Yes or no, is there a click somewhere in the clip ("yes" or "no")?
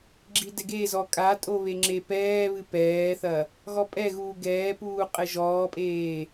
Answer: yes